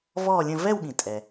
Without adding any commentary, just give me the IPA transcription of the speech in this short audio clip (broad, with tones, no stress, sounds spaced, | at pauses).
v ɔː˥˧ lʲ ə̃˥˧ v ɛ˥˧ w ɠ ĩ˩ tʼ ɛ˩